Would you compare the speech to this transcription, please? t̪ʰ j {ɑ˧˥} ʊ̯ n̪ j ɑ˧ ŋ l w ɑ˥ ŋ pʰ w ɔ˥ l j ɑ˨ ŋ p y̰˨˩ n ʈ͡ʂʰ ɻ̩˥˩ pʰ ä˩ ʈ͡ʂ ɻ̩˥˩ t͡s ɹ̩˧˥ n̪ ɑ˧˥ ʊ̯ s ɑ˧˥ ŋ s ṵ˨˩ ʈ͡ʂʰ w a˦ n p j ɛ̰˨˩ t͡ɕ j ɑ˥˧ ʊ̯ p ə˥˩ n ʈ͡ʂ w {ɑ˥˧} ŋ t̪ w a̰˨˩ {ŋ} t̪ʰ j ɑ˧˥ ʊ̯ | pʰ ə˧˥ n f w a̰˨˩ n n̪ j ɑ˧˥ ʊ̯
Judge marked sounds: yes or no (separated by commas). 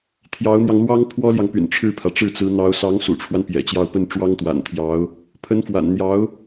yes, no, no